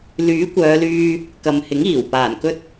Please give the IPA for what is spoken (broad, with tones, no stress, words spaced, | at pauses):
lyː˨˥kʷœː˨˧lyː˧ | kɐ˨mhɪ˨˥ŋiː˨˩w paː˨˩nkɵ˥t̚